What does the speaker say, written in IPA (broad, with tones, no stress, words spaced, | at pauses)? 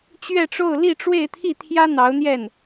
t͡ɕɥɛ˥˧ʈ͡ʂo˥˧ʊ̯ li˥˧ʈ͡ʂwe˥˧ɪ̯t̪ʰi˥˩t̪ʰjä˥ n̪ɑ˧˥ʊ̯n̪jɛ˥˩n